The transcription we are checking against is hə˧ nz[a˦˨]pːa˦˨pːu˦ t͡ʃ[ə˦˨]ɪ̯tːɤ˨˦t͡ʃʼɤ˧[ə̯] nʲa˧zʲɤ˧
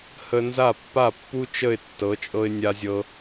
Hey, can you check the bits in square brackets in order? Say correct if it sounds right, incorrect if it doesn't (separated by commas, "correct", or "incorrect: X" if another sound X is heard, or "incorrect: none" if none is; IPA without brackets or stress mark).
correct, correct, incorrect: ɪ̯